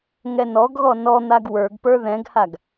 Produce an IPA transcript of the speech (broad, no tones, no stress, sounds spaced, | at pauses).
ŋ ɛ n ɔ ɡ ɣ ɔ n ɔ n̪ a ɡ w ə˞ ɡ p ə˞ ð ɛ̃ ɡ h a ɡ